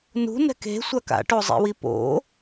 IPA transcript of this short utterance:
n ṳ n ɛ̤ k e̤ sʷ a k a̰ ʈ o zˤ ḛ w i p o̰

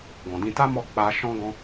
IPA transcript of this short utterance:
ɡ ɔ̃˨ d ĩ˧ t a˦ m ɔ˦˨ k͡p a˧ ʃ ɔ̃˦ ɡ ɔ̃˦

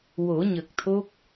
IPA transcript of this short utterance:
w o˨˩˦ ɲ ə˨˩ k̚ t̪ʰ o˦˥ k̚

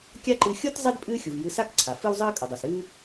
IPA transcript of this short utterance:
kʲ a˥ ǃ ɨ˧ xʲ o˥ t zˤ e˥ d pʼ ɨː˥ xʲ u˩ v j ɨ˧ s a˥ k ǀʰ a˩ f ɨ˥ w zˤ ɨː˥ kʼ ɵ˩ dˤ o˩ s ɨː˥

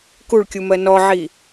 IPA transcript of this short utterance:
k u ɭ kʲ u m ɜ n ɔ ʕ i

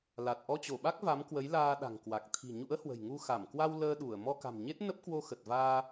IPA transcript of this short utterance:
l a˨˩ t̚ ʔ ɔ˧ t͡ɕ o˧˩ ɓ a˦˥ k̚ v a˨˦ m k w ə˨˦ j l aː˧ ɗ a̤˨˩ ŋ k w a˨˩ k̚ t̪ʰ i̤˨˩ ɲ ṵ˧˥ ə̯ h w ə̤˨˩ j ŋ u˧ x a˧˩ m k w a˧ w l əː˧ ɗ u˧˩ ə̯ m ɔ˧ k a̤˨˩ m ɲ e˦˥ t̚ n ə˦˥ p̚ k w o˧ x ə˨˩ t̚ v aː˧

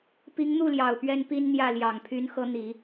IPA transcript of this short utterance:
p i˧˥ ŋ n̪ u˥˩ l j ɑ˨˩ ʊ̯ p ɥ ɛ˥ n p i˥ n n̪ j ä˥˩ l j ɑ˨˩ ŋ pʰ y˧˥ n x ɤ˧˥ n̪ i˨˩˦

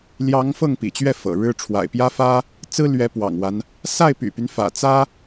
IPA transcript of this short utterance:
l j ɑ˧˥ ŋ f ɤ˥˩ ŋ p ḭ˨˩ t͡ɕ ɥ ɛ˥˩ f ɤ̰˨˩ ɻ ɻ̩˥ ʈ͡ʂʰ w a̰˨˩ ɪ̯ p j ä˥ f ä˥ | t͡s ɹ̩˥ l ɥ ɛ˧˥ p w ɑ̰˨˩ ŋ w a˦ n | s a˥˩ ɪ̯ p y̰˨˩ p y˦ n f ä̰˨˩ t͡s ä˥

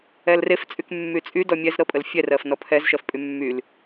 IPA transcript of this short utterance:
ɛ l r e f t͡sʼ y k mː y t͡sʼ y d ɔ mʲ ɛ z ɾ ɤ pʼ ə l fʲ ɛ r ɜ f n ɔ pʰ ɛ z ʃ ɜ f pʼ y mː y l

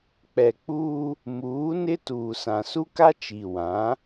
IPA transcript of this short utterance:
k͡p ɛ˨ k͡p uː˦ | m uː˨˦ n ɪ˦ t uː˨ s ã˨ s u˦ k a˦ t͡ʃ i˨ w ã˨˦

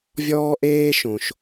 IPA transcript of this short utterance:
vʲ ɔː˥ ʔ eː˥ ʃ õ˩ ʃ

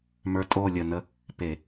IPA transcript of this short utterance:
m ə˞˨˦ tʼ o˦˨ lʲ ə˦˨ n ə˥ | p e˧˩˧

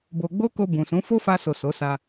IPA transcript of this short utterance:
b o˧ ɡ͡b o˦ k o˧ b ũ˨ s ũ˨˦ f o˦ f a˧ s o˨ s o˨˦ s a˧

